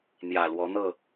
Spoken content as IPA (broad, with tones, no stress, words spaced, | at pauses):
n̪jä˨˩ lwɔ˨˦n̪ɤ˥˨